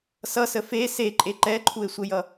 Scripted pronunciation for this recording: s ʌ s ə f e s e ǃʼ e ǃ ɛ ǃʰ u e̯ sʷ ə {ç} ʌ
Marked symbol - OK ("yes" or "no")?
no